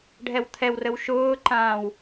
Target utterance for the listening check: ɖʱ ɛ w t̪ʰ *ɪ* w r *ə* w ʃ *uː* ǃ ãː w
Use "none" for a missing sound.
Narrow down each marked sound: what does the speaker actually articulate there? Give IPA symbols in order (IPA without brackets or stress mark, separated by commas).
ɛ, ə, ʊː